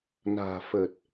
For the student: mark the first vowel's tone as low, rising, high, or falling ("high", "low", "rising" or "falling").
low